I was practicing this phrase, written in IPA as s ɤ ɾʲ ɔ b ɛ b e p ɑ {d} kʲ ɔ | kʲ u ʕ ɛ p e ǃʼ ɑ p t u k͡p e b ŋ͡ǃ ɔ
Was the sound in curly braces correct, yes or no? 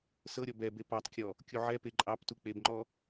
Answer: no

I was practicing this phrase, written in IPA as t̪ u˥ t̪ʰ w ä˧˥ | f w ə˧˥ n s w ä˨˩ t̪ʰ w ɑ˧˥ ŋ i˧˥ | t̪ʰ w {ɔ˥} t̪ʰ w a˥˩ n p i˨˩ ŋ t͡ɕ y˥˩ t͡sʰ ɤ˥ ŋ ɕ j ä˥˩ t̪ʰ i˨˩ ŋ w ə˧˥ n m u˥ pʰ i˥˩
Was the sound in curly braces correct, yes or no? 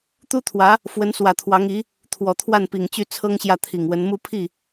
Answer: no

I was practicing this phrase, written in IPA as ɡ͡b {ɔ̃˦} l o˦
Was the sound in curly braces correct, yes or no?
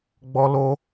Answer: no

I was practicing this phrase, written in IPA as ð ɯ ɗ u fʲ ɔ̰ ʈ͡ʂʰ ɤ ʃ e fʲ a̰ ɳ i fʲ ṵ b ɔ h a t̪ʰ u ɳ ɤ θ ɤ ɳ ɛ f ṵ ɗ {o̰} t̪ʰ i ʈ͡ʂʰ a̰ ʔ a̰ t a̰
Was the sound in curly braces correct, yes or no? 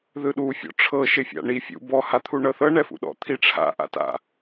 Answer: no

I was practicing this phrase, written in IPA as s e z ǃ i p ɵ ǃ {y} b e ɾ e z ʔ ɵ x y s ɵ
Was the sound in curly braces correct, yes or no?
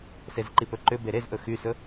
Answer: no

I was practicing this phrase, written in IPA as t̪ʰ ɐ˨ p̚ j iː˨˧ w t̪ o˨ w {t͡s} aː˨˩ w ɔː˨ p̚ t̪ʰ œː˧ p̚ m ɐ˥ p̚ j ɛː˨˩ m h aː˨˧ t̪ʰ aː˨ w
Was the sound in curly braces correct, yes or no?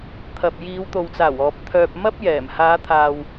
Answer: yes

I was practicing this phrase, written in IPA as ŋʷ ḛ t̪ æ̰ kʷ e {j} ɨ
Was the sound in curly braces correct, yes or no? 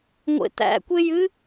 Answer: yes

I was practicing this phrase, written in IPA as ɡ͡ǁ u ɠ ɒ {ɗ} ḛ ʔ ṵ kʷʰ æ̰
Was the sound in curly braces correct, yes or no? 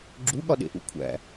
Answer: yes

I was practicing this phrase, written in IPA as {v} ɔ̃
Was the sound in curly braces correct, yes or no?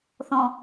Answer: no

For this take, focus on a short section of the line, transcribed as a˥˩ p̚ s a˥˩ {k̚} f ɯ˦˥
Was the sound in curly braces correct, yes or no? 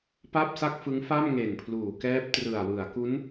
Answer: yes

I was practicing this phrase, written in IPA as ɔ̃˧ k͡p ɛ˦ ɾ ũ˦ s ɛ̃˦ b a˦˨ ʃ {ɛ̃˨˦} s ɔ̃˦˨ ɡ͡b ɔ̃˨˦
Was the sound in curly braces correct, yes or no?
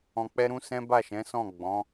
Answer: yes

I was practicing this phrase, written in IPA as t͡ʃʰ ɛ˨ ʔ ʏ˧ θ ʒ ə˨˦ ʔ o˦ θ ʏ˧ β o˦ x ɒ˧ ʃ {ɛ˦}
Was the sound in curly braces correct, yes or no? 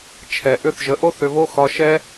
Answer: yes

